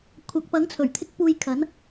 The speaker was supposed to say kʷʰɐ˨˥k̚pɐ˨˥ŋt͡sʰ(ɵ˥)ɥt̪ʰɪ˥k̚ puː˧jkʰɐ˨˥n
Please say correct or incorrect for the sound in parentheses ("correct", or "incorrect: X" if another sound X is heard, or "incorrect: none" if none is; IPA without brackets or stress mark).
incorrect: ɵ˨˩